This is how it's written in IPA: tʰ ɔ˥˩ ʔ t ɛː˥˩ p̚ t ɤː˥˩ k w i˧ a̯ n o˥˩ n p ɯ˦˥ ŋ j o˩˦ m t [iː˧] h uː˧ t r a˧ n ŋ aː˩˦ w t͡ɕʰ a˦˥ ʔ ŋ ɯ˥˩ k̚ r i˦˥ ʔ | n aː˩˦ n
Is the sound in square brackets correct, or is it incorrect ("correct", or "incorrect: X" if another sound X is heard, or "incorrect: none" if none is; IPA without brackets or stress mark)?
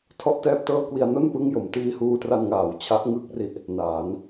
correct